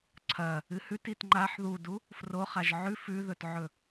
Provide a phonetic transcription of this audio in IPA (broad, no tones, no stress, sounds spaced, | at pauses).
ǀʰ ɐ | ɨ h ʉ t i t ŋ͡ǃ a ħ ð u d u | f r o χ a ʒ ʕ ʉ f ʉ ð ɵ t ʕ ɵ